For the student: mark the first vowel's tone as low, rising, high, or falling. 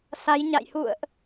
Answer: rising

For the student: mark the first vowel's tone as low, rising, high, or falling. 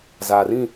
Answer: low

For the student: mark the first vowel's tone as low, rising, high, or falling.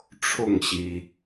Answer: falling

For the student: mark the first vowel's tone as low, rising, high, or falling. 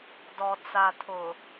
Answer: low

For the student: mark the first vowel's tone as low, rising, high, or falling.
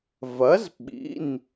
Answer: rising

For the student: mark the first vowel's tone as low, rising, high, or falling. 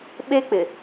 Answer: high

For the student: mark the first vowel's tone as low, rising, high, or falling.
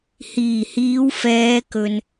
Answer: low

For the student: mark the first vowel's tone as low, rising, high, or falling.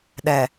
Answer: low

